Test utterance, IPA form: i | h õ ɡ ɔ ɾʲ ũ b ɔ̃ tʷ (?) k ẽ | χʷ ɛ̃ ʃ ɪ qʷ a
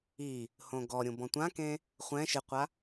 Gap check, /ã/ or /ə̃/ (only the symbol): ã